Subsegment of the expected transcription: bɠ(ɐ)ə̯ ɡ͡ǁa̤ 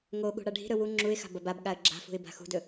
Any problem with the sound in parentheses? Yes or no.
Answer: yes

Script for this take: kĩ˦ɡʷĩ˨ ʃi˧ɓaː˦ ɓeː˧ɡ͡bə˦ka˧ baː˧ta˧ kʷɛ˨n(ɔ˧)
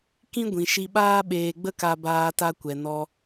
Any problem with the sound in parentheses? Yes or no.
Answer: no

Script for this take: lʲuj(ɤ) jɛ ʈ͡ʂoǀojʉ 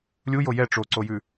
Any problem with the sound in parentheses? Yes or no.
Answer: yes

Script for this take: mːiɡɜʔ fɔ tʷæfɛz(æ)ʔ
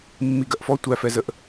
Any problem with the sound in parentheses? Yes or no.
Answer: yes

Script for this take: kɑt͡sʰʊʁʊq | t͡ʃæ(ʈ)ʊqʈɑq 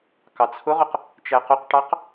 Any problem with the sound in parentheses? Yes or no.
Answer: yes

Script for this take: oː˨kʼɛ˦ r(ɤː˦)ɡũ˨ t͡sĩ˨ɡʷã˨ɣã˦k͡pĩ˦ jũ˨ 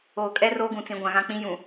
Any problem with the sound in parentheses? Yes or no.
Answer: yes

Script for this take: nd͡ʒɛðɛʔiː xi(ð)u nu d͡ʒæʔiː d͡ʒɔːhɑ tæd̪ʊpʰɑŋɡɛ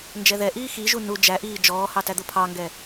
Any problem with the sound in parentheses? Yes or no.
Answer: yes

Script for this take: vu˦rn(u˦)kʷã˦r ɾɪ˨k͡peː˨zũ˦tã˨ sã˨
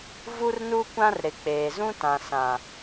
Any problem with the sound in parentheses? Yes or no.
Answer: no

